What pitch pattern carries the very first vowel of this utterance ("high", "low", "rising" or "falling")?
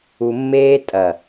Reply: low